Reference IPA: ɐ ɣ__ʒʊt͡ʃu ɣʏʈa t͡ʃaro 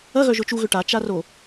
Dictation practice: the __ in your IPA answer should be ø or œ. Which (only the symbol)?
œ